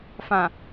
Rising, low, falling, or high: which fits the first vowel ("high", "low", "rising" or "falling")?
low